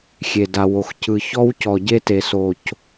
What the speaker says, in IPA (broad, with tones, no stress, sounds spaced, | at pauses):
xʲ e˨ d a˨ w o˨ x c ɯ˨ ç ɔ˦ w c ɔ˨ ɟ e˦ t e˨ s o˨ c